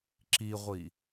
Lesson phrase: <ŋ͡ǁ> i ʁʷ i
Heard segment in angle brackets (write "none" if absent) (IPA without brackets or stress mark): ǁ